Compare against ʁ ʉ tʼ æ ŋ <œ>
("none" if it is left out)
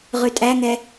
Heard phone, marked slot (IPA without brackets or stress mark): ɛ